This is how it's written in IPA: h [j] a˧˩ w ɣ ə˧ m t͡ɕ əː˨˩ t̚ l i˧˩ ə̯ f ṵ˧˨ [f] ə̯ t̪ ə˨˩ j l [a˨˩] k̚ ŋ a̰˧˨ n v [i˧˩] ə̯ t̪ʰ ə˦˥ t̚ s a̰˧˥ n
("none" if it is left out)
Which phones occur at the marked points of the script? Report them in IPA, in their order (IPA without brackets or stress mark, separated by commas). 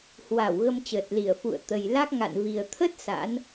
w, none, a˦˥, i˨˩